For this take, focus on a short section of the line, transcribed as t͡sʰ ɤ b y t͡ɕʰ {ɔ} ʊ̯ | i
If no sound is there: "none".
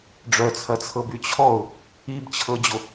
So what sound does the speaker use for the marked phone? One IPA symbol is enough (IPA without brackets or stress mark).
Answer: ɔ